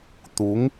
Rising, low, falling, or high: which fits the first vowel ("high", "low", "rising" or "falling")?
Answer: rising